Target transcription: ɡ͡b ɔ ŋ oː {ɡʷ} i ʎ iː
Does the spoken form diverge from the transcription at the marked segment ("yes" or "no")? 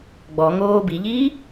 yes